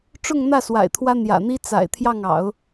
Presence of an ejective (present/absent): absent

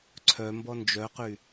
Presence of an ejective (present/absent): absent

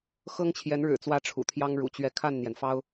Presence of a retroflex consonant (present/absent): present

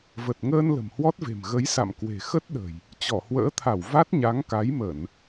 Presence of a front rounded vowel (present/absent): absent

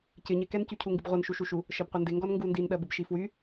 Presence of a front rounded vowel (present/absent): present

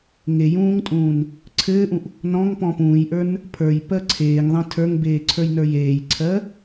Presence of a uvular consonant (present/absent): absent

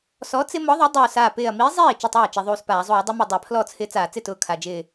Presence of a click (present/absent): absent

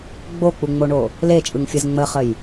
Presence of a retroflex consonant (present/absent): present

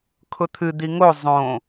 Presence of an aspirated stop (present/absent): present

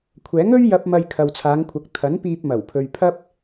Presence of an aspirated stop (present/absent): present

